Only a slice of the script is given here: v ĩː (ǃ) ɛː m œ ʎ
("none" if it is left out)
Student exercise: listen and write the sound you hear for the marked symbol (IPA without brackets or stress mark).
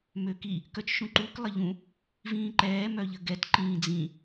ǃ